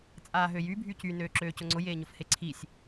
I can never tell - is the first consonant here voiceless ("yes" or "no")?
yes